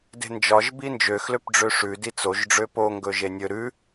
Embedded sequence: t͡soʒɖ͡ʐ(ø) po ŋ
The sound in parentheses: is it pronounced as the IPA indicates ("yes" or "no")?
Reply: yes